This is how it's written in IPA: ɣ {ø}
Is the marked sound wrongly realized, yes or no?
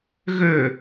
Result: no